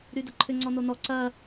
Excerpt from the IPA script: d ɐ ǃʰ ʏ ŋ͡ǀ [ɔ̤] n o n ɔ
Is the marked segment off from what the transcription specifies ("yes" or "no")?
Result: yes